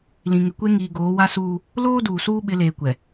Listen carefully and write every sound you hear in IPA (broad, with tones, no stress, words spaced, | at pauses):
lĩ˨ŋɪ˨kʷe˦ ŋiː˨ɡoː˨˦wa˦suː˦ | loː˦ duː˨suː˦ ɓɪ˨˦leː˨kʷɛ˨